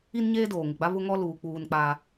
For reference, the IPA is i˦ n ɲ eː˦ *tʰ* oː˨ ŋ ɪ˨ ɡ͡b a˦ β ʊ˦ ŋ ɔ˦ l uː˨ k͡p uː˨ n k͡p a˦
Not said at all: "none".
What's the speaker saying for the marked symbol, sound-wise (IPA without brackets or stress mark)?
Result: d